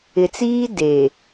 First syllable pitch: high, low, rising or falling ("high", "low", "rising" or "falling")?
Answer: low